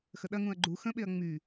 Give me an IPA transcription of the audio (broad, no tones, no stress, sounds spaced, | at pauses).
x ə ɗ ɐ ŋ ũ ɐ̯ ɡ͡ǃ u x ə̃ ɓ e ɐ̯ ŋ͡m y